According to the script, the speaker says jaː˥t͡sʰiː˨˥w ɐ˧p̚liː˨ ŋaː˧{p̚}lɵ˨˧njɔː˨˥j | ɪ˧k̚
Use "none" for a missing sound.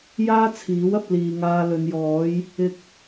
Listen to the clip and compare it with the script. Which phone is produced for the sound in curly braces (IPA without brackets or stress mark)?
none